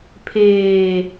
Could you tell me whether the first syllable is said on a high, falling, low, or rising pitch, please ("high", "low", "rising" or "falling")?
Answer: low